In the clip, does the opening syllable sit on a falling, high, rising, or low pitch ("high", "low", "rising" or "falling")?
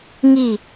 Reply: falling